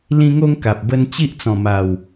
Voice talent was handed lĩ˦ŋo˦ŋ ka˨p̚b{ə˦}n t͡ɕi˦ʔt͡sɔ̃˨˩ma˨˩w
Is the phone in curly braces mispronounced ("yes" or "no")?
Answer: no